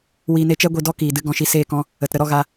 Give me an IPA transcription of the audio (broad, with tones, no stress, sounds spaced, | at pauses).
w iː˧ n e˧ t͡ʃ ɛ˦ ɡʷ i˧ d ɔ˦ k iː˨ d ɨ˧ ɡ ɔ̃˧ ʃ i˧ s eː˦˨ k ɔ̃˦ | ə˨ t ɾ ə˧ ɾ ɔ˧ ɣ a˧